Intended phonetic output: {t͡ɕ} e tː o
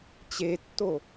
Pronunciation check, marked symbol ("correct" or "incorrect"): correct